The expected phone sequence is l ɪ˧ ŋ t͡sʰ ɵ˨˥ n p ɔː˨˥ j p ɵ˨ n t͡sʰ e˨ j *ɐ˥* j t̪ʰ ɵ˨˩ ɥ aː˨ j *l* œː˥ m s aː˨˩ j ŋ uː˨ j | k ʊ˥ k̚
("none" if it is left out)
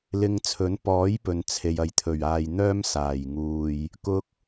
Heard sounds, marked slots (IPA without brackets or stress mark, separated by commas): ɐ˨, n̪